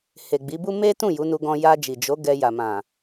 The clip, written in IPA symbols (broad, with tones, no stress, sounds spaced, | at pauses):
h e˨ ɡ͡b i˨˦ b u˦ m e˦ t ũ˦˨ j u˨˦ n u˧ ɡ ɔ̃˧ j a˧ d͡ʒ i˨ d͡ʒ o˨˦ ɡ ɛ˧ j a˨ m ã˨